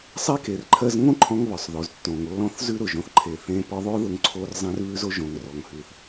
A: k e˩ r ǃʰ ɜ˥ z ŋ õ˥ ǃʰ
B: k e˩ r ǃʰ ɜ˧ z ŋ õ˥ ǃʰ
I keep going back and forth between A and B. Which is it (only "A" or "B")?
B